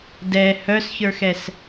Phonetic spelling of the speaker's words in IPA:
dɛ hœsçə˞xɛs

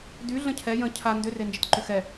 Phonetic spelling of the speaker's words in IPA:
dy ɮə̃cʰɛ jə̃ cʰa ndʏre nd͡ʒətǃʏxɛ

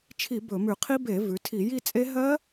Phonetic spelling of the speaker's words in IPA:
t͡ʃʰi˧˩˧ bɵ˧˩˧mʉ˧˩˧qʰi˦˥ be˧˩˧ vʉ˩˧tʰi˧˩˧ji˦˨t͡sʼe˦˥ ɦɜ˦˥

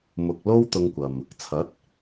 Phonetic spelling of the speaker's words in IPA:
mʊ˨k̚ lo˥wt̪ʊ˧ŋkʷɐ˨m | t͡sʰɐ˨˥t̚

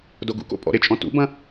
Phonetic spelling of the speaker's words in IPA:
doɡṵko̰ pʼɔ̰ɾɪt͡ʃʼɔ̃ tṵbɐ̃

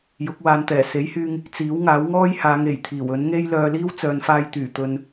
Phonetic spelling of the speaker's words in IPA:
jʊ˨˥k̚waː˨˧nt̪ɛː˨˩ se˨˥jhyː˧ŋ | t͡siː˨˥wŋaː˨˥wŋɔː˥jhaː˨˧ŋ e˨˩jt̪ʰiː˨˩w ɵ˨˥nŋe˥j lœː˧liː˥w t͡sœː˨nfaː˧jt̪yː˨˩t̪ɵ˨n

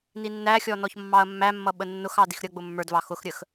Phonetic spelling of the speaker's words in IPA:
ninːæxʲɔ nɔçmːɑɐ̯mːæmːʌ ɓənːʊxɑ dixɾʲʌɡ͡bʊ mːə˞dvɑ xʊxɾʲəx

